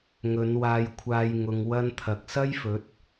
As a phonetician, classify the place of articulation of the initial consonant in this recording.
velar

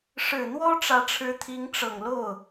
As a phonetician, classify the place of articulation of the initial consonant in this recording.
retroflex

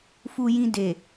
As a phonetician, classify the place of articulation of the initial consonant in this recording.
labial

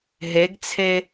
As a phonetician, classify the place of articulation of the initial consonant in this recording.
glottal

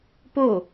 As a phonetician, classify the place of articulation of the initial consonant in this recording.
labial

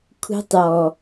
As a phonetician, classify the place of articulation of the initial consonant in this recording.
velar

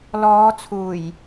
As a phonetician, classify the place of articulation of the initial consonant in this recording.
alveolar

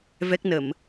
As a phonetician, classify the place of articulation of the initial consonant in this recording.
labial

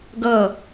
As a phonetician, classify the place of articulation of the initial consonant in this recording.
velar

